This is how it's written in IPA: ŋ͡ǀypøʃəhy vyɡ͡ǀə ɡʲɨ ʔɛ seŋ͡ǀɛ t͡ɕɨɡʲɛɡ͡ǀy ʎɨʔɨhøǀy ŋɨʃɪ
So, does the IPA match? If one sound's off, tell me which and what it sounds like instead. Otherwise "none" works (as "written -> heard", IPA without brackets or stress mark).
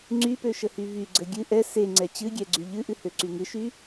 ɪ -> y